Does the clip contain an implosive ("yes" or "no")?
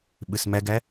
yes